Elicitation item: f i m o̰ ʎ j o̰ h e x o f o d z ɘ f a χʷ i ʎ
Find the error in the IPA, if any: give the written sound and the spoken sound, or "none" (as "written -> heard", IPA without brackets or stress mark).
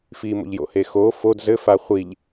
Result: none